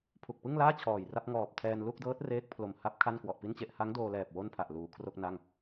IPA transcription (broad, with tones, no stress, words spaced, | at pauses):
pʰu˨˩k̚pɯ˥˩ŋ laː˥˩ t͡ɕʰɔː˨˩jra˥˩p̚ ŋɔː˨˩p̚tʰɛː˧n lu˥˩k̚dɤː˦˥t̚ reː˦˥k̚pʰlo˨˩m ha˦˥p̚ kʰa˥˩nkwɔ˨˩ʔpi˥˩nt͡ɕe˥˩ʔ ha˦˥ŋdoː˧lɛː˨˩p̚ wo˥˩npʰa˨˩ʔ luː˩˦kʰro˥˩k̚na˥˩ŋ